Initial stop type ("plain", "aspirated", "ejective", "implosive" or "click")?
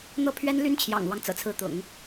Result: aspirated